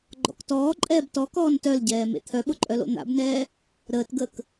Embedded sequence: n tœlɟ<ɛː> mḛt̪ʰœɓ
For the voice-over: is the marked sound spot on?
yes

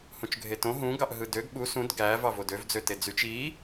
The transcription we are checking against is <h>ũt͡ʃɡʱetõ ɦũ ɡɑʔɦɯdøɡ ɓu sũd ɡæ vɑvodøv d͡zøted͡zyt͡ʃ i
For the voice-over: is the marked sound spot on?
yes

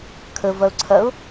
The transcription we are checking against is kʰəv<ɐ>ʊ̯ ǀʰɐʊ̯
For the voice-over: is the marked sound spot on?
yes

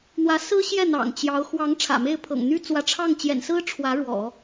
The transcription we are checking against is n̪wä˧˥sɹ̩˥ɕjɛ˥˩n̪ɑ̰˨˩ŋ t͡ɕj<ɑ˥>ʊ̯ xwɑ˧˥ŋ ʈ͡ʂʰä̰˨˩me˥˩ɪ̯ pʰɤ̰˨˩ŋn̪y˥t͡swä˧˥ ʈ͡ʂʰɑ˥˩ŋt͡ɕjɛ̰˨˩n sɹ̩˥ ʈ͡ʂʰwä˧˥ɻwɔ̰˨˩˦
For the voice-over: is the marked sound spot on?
no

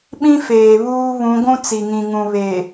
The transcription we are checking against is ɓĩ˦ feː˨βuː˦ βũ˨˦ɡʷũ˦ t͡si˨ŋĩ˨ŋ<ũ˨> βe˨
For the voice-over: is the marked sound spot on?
yes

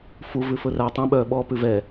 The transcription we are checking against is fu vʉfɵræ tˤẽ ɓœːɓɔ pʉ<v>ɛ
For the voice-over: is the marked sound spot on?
yes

